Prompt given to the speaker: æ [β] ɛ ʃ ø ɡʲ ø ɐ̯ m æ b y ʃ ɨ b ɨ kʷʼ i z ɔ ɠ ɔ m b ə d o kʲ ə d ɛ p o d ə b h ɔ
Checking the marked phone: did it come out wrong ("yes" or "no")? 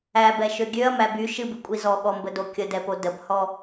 yes